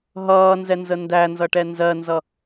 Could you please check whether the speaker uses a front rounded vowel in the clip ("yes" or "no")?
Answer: no